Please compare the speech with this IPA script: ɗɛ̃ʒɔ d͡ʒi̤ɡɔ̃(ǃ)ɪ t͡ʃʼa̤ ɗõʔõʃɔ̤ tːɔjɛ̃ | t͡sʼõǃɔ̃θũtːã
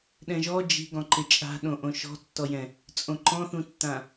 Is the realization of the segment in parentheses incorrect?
no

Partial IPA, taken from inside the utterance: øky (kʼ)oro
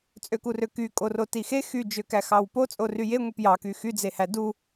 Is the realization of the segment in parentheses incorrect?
no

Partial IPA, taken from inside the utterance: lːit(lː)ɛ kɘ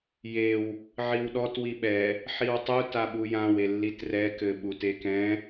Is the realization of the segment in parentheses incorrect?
yes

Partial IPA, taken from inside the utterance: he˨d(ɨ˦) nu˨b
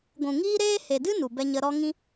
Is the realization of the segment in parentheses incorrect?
no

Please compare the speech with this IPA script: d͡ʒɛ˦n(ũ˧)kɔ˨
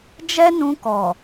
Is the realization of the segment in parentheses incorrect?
no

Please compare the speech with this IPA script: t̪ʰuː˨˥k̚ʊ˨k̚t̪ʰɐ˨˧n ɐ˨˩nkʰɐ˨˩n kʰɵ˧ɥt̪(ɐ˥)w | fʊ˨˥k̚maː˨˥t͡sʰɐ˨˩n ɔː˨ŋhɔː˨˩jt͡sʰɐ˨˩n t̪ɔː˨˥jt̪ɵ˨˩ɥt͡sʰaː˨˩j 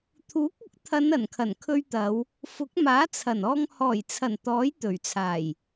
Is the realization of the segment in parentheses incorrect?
yes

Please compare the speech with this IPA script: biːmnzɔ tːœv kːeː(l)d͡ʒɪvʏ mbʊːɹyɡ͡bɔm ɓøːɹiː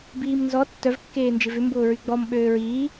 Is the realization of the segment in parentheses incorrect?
yes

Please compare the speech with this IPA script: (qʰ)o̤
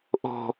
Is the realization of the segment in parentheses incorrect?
yes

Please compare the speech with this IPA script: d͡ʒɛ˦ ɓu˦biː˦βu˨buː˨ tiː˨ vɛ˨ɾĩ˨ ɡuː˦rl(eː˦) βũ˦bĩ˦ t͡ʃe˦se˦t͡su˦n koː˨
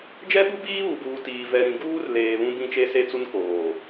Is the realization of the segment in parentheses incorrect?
yes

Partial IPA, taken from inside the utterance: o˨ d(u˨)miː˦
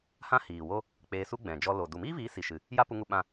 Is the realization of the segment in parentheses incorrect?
no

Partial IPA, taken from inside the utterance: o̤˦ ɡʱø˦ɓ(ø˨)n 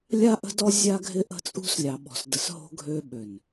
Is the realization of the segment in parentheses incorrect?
no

